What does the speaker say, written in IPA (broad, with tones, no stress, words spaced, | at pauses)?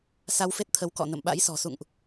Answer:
sa˧wfe˦˥t̚t̪ʰə˨˦w kɔ̰˧˨ nə̰˧˨mɓa̰˧˥jsɔ̤˨˩ sṵ˧˨ŋʔ